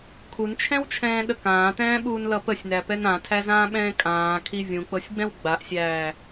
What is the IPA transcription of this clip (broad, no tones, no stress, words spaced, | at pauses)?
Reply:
kʰunt͡ʃʰɛ̃wt͡ʃʰɛ̃ːɗə kãːtɛ̃ːɓuːnlʌ pəsʲnæpɛn ãtʰæzãːɓɛ̃ː kʼãːkʰi vʲũk͡pɤsʲɡ͡bɛ̃w ɡ͡baʔsʲæː